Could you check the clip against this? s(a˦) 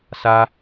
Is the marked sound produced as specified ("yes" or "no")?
yes